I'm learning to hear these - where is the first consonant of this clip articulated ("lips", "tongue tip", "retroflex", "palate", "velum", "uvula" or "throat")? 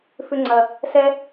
lips